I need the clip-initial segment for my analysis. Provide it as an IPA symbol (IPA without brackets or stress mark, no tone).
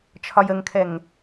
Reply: t͡ʃʰ